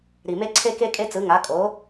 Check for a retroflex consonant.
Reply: absent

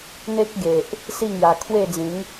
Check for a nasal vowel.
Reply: present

